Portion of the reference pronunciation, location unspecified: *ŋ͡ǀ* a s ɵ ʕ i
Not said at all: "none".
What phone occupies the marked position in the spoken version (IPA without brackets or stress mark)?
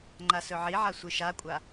ŋ͡ǃ